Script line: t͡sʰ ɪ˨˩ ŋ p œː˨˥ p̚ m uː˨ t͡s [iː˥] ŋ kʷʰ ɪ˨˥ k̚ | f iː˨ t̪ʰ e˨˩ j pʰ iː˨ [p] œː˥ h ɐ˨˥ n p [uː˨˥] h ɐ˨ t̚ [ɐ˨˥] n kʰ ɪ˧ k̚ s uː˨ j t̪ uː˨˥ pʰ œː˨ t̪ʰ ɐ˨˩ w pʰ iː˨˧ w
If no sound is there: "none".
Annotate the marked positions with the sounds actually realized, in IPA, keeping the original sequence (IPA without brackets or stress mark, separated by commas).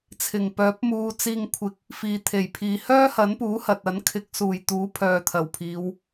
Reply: iː˨, h, uː˨˥, ɐ˨˥